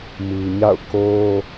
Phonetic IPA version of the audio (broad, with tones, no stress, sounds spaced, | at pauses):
m i˨ ɲ a̰˦˨ ʊ̯ k o˦